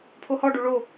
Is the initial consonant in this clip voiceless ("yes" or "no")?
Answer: yes